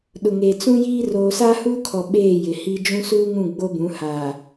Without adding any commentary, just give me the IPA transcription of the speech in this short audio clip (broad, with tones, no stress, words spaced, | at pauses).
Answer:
ɗʊ˨ŋeː˨ t͡sũ˦jiː˦ roː˨saː˦huː˦kʰɔ˨ ɓeː˦˨jɪ˨ hi˦ d͡ʒũ˦suː˦ ŋũ˦˨ɡ͡bo˦bũ˨˦ haː˨